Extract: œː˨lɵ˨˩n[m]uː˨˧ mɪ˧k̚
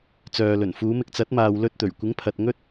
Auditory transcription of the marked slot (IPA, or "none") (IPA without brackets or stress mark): f